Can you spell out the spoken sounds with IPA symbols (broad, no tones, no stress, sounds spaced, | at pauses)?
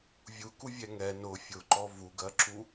vʲ u k u vʲ ɛ ŋ ɛ n ʊ fʲ ʊ ǃ ɔ v u ɡ ɜ ǁ u